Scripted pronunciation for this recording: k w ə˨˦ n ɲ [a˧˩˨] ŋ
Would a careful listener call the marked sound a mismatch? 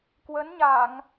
no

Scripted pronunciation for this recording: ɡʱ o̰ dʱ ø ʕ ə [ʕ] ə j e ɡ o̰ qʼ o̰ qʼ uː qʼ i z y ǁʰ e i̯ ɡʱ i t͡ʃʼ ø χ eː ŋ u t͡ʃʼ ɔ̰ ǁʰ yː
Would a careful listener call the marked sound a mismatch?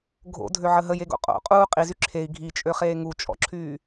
yes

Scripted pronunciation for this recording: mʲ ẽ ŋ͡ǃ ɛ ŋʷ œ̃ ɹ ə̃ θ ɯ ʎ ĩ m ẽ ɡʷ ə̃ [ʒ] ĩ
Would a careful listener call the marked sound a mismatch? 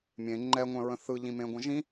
no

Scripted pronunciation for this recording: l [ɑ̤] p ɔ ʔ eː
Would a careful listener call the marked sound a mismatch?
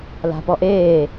yes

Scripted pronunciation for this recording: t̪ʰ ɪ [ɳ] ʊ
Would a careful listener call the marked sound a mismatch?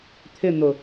yes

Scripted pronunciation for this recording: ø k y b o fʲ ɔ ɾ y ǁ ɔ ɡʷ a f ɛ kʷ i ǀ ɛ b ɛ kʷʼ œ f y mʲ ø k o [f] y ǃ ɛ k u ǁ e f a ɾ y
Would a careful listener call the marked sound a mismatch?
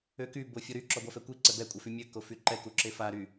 no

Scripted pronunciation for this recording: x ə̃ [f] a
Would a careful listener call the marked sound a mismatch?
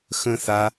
yes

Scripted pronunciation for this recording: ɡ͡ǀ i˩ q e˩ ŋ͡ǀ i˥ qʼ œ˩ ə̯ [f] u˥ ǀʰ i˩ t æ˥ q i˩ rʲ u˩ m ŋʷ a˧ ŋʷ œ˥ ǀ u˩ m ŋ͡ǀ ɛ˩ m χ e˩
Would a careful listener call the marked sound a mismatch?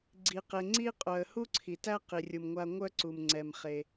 yes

